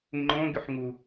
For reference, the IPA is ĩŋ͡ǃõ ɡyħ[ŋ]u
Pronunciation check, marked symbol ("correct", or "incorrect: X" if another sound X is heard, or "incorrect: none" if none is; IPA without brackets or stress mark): correct